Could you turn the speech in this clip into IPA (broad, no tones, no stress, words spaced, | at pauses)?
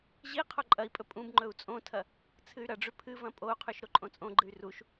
ʑi qʰoǃʼɐi̯pʼɵ pʼũb ŋ͡ǃɵu̯t͡sʼõtʰɐ | t͡sʰɨy̯ɾɐɖ͡ʐʉ pʰɨvɐ̃ pʼou̯qʰʉʃ ɾoǃʼõt͡sʼõɡ͡ǃɨy̯ ruʃ